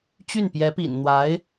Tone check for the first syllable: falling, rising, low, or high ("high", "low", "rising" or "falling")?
falling